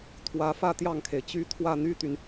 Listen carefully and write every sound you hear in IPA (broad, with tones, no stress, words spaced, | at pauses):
t̪ʰwä˧˥fä˥˧ t̪jɑ˥˩ŋkʰe˩ɪ̯t͡ɕy˥ t̪ʰwä˥˩n̪y˥t̪y˨n